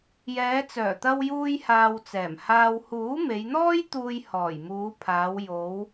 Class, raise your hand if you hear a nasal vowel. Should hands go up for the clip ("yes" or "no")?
no